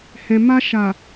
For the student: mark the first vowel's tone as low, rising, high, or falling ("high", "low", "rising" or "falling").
low